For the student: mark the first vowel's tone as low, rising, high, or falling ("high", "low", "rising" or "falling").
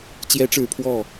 high